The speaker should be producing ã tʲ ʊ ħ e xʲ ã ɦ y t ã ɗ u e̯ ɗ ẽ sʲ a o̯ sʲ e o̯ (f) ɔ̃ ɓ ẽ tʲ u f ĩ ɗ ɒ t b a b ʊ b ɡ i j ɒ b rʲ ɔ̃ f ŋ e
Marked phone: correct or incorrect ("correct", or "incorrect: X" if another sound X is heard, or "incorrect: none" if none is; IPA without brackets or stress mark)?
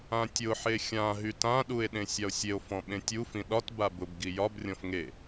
correct